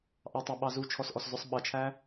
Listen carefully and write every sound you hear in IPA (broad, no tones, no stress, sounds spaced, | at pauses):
ʔ ɑ tˤ æ ɓ ɑ z u t͡ʃʰ ɔ s ʔ ɔ s z ʊ sˤ ɓ ʌ t͡ʃʰ æ